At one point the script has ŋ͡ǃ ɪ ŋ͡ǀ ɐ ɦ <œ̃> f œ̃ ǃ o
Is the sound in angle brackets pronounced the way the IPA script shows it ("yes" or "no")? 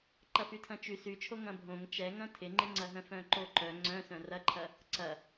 yes